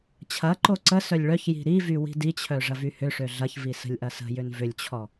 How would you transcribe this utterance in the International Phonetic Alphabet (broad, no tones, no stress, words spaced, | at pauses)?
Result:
t͡ɕʰɐǃo ǀə sœlʲɭœçji̤ ɾivy wi̤dit͡ɕʰœ ʐɐvyhʏʂø ɮɐçvi sə̤lʲʔɐsə̤jʏn vʏlʲt͡ɕʰɔ